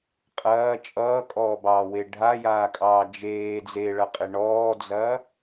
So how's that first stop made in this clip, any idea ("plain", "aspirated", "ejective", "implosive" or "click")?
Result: ejective